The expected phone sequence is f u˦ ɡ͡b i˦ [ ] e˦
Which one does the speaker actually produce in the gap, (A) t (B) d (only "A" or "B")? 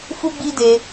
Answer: B